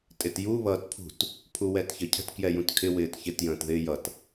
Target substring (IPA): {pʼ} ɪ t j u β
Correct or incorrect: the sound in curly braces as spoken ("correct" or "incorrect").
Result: incorrect